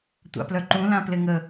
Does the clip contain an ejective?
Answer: no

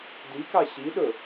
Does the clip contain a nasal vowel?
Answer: no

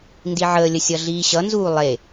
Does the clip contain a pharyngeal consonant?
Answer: yes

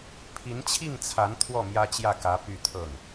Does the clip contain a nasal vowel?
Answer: no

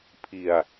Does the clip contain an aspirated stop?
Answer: yes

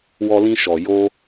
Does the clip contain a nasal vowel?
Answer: yes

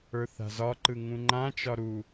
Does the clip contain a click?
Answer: yes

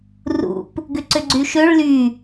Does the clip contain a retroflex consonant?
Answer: yes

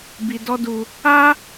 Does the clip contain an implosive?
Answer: no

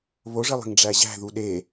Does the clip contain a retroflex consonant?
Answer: yes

